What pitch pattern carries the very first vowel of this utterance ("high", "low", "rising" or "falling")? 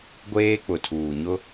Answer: high